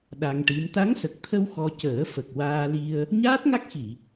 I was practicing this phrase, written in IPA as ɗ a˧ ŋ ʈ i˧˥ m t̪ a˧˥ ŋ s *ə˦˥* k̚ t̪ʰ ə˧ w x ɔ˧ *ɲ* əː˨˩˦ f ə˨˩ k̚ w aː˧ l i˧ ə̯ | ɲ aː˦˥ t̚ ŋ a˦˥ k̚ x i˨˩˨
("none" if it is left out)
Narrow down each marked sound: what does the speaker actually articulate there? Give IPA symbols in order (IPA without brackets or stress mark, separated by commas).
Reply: ə˨˩, c